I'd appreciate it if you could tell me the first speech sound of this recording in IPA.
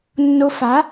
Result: nː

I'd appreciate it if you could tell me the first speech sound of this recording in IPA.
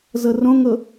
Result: z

